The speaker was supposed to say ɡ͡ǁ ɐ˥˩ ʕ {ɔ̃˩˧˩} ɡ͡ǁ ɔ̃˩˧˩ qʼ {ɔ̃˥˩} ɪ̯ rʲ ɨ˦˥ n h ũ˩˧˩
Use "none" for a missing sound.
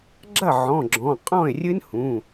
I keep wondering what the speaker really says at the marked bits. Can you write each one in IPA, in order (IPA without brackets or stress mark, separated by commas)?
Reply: ɔ̃˩˧˩, ɔ̃˥˩